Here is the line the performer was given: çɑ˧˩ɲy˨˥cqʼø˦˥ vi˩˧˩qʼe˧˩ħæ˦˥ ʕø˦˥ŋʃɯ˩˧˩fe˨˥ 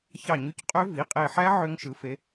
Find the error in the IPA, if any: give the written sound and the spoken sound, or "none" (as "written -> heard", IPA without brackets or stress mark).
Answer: none